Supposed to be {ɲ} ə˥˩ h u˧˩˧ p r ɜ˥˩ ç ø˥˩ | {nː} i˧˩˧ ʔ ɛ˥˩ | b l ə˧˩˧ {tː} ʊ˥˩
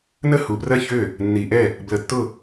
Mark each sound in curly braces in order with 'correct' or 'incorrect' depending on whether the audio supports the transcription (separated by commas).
incorrect, correct, correct